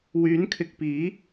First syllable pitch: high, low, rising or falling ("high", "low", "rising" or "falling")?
rising